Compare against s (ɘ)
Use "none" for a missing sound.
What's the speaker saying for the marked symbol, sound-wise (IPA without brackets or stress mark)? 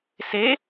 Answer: e